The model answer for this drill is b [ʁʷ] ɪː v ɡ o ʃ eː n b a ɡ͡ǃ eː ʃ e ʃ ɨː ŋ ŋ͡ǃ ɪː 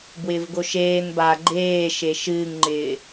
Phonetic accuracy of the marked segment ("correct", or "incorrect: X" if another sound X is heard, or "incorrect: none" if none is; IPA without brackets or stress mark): incorrect: w